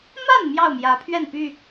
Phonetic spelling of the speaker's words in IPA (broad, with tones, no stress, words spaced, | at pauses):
ma˥˨n mjɑ˥˨ʊ̯mjä˨˦pʰɥɛ˥˨n py˥˨